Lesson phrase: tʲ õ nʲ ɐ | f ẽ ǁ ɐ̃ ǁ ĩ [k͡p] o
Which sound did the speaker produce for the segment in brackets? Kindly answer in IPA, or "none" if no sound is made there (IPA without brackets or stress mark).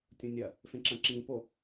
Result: p